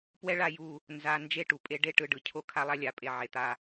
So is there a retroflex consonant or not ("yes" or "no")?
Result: yes